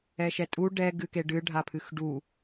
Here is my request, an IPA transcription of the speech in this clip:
ɛ ʃ ɛ tʼ u ɖ ɛ ɡ ɨ k e ɖ ɨ ɖʱ a pʰ ɨ x ɖ u

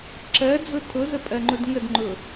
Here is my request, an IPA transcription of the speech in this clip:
ǁ ɜ d͡z ʊ tʰ ʊ z ə pʼ ɜ ŋ͡ǃ ʊ d ŋ ə d ŋ͡ǃ ʊ

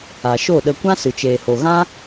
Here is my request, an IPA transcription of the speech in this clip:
a˨ ʃ o˦˨ ɗ ə˧ kʷ ã˦ s ɨ˨ t͡ʃ eː˨ h o˨ ɣ ã˦

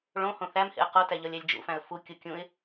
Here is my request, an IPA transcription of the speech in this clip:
ɭ õ h õ θ æ m h ḛ ə̯ q o t æ ʎ ɒ lʲ æ lʲ d͡ʒ ṵ f æ̃ ə̯ f u kʲ u kʲ ũ ɪ̯

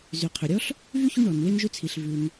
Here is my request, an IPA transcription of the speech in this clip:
z y˩ qʰ ʏ˩ ɾʲ ɔ˦ ɬ | v y˥ ç y˦ ɳ ɔ˩ n w e˥ n ʒ ʉ˥ t͡sʰ i˨ ɬ v ʉ˨ n

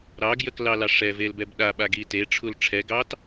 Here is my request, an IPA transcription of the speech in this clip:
ɾ ɑ ɡ j ə k l ɑ l ɑ ʂ ɛ v e l b ɛ b ɗ a ɓ a ɡ i t e ʈ͡ʂʰ u l ʈ͡ʂʰ ɛ ɡ ɑ t

